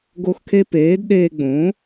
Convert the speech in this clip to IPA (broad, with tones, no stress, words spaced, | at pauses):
ɡo˧xkʰe˧ peː˩˥d ɗeː˧ɡ͡bõ˩˥